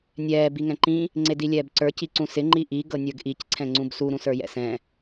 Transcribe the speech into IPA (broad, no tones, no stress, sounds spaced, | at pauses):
nʲ ɛː b i ŋ ɛ̃ ǃ ĩ | ŋ͡ǀ e d i lʲ ɛː b ǀ ə˞ c i ǀ ũ s ɪ ŋ͡ǃ i ʔ i ɡ ɤ nʲ ə˞ ɡ ʔ i c ǀʰ ɛ̃ ŋ͡ǀ ũ b s u ɾ ũ s ə˞ j ɛ̰ s ɛ̃